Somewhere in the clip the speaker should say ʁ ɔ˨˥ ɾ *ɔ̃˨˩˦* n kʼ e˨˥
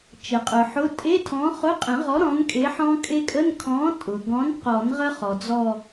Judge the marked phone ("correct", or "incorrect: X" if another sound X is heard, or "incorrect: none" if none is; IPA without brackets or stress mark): incorrect: ɔ̃˨˥